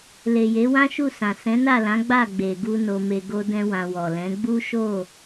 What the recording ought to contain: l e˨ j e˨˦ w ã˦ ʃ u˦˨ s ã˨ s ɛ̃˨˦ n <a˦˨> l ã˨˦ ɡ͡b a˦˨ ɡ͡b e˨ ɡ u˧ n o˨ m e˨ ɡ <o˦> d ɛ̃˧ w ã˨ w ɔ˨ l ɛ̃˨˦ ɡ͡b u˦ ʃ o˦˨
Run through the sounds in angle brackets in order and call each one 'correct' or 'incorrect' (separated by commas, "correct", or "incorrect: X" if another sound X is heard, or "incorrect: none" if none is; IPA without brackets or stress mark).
correct, incorrect: o˧